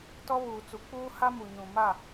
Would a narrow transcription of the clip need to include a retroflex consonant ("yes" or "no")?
no